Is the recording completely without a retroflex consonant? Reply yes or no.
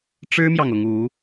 no